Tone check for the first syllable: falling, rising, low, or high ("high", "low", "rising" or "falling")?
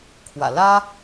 low